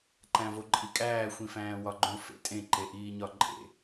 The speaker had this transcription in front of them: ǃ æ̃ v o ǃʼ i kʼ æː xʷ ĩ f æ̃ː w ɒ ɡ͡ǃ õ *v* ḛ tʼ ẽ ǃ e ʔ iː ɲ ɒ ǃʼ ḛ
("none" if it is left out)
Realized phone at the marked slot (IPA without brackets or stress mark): f